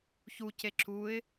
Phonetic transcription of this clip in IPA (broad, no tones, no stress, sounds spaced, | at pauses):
ç u c e ǁ u ɪ̯